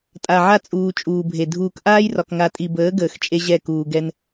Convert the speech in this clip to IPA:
tʼ a˨ ʕ a˦ t͡sʼ uː˨ t͡ʃʼ uː˨ bʱ e˨ dʱ uː˨ k ʔ aː˦ j r ɒ˨ k ŋ a˨ tʼ i˨ b əː˨˦ ɡ əː˨ x t͡ʃʼ e˦ ʑ ɛ˦˨ k uː˨ ɡ ɛ˦ n

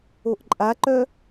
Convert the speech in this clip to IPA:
o ʔ ǃʼ a ǃ œ

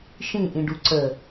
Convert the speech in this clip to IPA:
ʃ ĩ ʔ ĩ ɖ u ǀ ə

